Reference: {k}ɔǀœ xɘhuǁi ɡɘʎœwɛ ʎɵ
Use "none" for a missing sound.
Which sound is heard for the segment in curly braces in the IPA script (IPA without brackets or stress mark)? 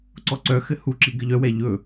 ǀ